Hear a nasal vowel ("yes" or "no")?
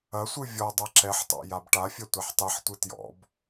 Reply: no